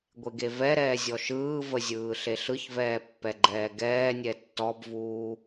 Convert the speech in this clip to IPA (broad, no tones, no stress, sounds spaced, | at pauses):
ɡʷ e ɡ e v ɛ ɾ ɛː zʲ ɔ ʃ ɯː v ə zʲ ɯː ɬ e ɬ ɯ ç v ɛː pː ɛ ɡ͡ǃ ɛː ɡ ɛː nʲ ɛ tː ɔ b v uː